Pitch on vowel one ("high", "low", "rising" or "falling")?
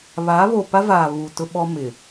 rising